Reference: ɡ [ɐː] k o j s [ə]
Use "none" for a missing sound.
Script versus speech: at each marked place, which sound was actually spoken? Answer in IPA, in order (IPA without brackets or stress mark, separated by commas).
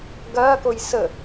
ɐː, ə